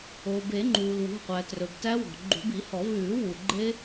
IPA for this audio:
o˩ b e˨˩˦ ŋ͡ǃ uː˩ l w ṳ˩˧˩ qʷ æ˩ t r ɵ˩ b t æ˦˥ w ɔ̤˩ ɡ͡ǃ ṳ˨˩˦ b i˨˩˦ h ɔ˨˩˦ v ʉː˨˩˦ w u˩ ɡ͡ǃ e˦˥

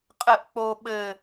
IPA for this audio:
qʼ ɘ ʔ k͡p o ɓ ɘ

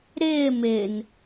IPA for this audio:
ɾ ɪː m ɪ n

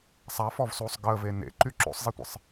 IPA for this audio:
sˤ a f ɔ v s uː sˤ ɡ əː v e n ḛ ǃ y ǁ o̰ sˤ zˤ i tʷ ə̰ sˤ

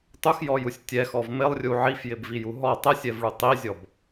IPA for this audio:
tˤ u x j ɔ j u sʲ tʲ ɛ x ɔ v m ɪ lˠ rʲ u ʕ i f j ɪ b v i j u ɦ ɔ tˤ ɛ sʲ ɛ v ɭ u tˤ i zʲ ɔ b

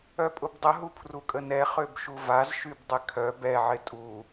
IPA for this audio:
œ pʼ ʊ b dˤ ə ɦ u pʰ r u kʼ ə n ɛ χ ø b ʃ u v a z ʃ y b dˤ ɪ kʰ œ b ɛ ʕ ɪ tʼ u

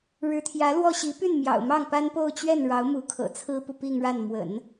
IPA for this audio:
ɻ ɻ̩˧˥ t̪ʰ j ä˧˥ l w ɔ˥˩ ɕ i˧˥ p y˥˩ n m j ɑ̰˨˩ ʊ̯ m ɑ˥˩ ŋ p a˥ n p o˥˧ ʊ̯ t͡ɕ ɥ ɛ˥˩ n ɻ ɑ˧˥ ʊ̯ m u˧˥ kʰ ɤ̰˨˩ t͡sʰ ɹ̩˥ p u˨ p i˥˧ ŋ ɻ a˥˩ n m w ə̰˨˩˦ n

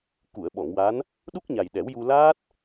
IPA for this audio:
k u˨˩˨ ə̯ ɓ ɔ˨˩˨ ŋ w a˧˥ n | ɗ u˦˥ k̚ ɲ a˨˩ j ɗ ɛ˨˩˦ w j u˧ l aː˦˥ t̚

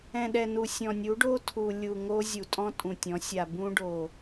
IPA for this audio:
ɛ̃˨ ɗ ɛ˨ n u˨ sʲ ɔ̃˨ nʲ u˨˦ ɖ o˦ tʰ u˨ lʲ u˨ ŋ o˦ zʲ u˨ tʼ ɔ̃˦ tʼ ũ˨ tʲ ɔ̃˨˦ sʲ a˨ b ũ˦ ɖ o˨

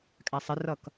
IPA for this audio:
kʼ æ sˤ ɪ r ʌ k

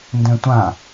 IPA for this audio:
n d ɛ̃ tʷ ã

